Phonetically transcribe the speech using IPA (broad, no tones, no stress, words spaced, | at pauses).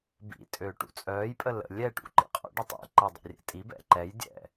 bḭ tʼøːʈṵt͡sʼœːjpʼə lə̰ lʲɛ ʈṵǃḭqʼo̰ɖitˤ ḭǃe dˤɛ̰rʲɛ̰tʼibɛ̰ ǃɛj dʲɛ̰